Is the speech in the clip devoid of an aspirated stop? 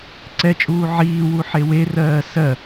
yes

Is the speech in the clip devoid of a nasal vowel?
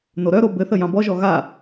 no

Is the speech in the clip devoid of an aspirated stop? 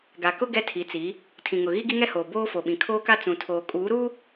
no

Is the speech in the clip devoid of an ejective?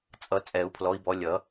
no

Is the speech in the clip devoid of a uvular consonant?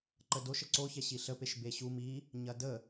yes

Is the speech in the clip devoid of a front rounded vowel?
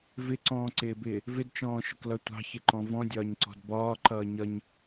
yes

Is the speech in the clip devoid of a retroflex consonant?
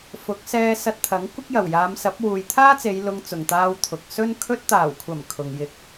yes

